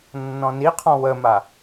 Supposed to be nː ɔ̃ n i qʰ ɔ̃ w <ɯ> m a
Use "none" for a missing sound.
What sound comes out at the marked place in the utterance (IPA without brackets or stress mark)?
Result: ə